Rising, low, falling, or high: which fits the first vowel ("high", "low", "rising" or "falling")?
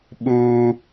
high